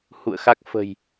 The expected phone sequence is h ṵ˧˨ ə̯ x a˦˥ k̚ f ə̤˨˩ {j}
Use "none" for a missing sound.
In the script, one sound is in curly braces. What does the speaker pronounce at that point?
j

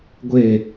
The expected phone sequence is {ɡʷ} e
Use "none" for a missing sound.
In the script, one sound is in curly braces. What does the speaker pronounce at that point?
ɡʷ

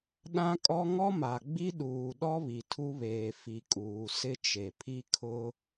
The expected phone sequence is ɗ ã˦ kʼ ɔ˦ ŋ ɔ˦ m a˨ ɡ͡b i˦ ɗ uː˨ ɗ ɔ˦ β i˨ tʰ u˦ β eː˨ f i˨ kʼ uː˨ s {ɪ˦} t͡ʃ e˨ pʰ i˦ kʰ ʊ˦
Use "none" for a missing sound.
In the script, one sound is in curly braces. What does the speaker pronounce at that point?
ɪ˦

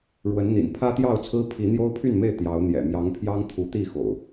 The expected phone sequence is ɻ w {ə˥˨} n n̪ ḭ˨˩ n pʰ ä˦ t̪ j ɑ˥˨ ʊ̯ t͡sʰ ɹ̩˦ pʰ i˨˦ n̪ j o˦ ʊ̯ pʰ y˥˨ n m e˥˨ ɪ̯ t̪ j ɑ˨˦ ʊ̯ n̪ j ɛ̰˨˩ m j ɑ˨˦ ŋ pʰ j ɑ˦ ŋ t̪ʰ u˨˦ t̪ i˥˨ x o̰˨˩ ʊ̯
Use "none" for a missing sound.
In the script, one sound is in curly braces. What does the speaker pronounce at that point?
ə˨˦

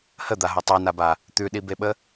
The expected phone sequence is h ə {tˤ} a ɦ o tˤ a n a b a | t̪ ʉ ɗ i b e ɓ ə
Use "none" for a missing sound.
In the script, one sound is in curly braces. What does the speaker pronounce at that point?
d̪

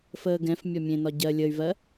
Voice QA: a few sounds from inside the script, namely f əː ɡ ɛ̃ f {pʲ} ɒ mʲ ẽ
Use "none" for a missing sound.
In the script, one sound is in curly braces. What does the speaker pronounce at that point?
mʲ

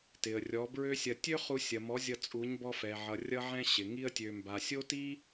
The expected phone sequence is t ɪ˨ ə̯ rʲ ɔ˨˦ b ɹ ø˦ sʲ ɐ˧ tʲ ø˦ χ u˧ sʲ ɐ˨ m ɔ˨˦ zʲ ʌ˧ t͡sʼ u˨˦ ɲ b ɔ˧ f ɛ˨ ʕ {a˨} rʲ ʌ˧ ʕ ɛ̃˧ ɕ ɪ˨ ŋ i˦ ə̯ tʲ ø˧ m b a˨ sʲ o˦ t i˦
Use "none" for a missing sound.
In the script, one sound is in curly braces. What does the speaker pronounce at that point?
ʌ˨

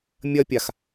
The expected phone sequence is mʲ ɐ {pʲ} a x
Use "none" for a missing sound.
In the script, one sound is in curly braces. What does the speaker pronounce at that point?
pʲ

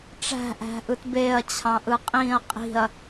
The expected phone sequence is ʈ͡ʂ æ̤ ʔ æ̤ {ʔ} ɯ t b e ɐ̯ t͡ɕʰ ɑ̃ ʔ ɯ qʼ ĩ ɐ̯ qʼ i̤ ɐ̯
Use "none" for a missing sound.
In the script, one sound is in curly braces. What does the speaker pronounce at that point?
ʔ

